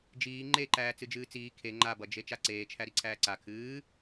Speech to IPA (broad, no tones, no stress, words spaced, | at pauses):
d͡ʒiː ŋ͡ǃeǃæː t͡sɨd͡ʒɨːt͡siː kʰe ŋ͡ǃabʌd͡ʒe t͡ʃaǀeːt͡ʃʰæ ɾiǀʰæːǀa kʰɨː